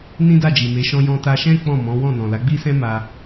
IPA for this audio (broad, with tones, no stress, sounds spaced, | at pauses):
n ĩ˦ d a˦˨ d͡ʒ i˨ m e˨˦ ʃ ɔ̃˧ j ɔ̃˧ t a˧ ʃ ɛ̃˦ k͡p ɔ̃˦˨ m ɔ̃˨˦ w ɔ̃˦˨ n ɔ̃˨ l a˨˦ ɡ͡b i˦ s ɛ̃˦ m a˧